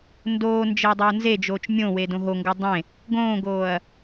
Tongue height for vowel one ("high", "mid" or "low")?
mid